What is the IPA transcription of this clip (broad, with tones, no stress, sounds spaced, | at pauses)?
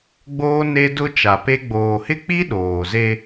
ɡ͡b oː˦ n e˦ d ʊ˦ t͡ʃ a˨ p e˦ ɡ͡b oː˨ h ɪ˦ k͡p i˦ ɗ oː˨ z e˦